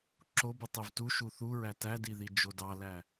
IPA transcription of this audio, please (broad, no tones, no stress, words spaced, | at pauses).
ǁobɯ tˤevtu ʃuθuɹæ tædiði d͡ʒodɑlæ